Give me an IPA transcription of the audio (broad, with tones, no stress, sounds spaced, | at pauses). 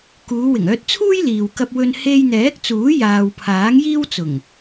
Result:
k uː˨˧ w ɪ˨˩ ŋ œː˧ t̚ t͡sʰ uː˥ j l iː˨ w k ɐ˧ p̚ w ɵ˧ n h e˧ j n̪ ɛː˨˥ k̚ t͡s uː˨˥ j aː˨ w pʰ aː˨˥ ŋ j iː˥ w t͡s ʊ˨˩ ŋ